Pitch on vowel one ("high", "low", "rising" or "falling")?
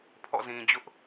falling